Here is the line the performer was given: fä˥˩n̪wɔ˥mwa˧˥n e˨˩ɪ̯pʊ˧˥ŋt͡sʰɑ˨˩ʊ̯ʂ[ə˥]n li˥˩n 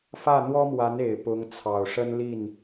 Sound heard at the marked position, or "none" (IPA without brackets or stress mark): ə˥